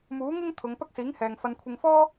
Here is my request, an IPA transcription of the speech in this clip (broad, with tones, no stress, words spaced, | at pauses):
muː˨˥ŋɪ˥ŋ t̪ʰʊ˨˧ŋpɐ˥k̚siː˨˥ŋhɛː˨ŋ fɐ˨nkʷʰɪ˨ŋfɔː˥